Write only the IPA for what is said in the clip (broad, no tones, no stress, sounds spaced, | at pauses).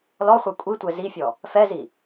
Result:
l ɔ χʷ ɛ kʷʼ i tʷ ɛ z i fʲ ɔ | f ɛ z i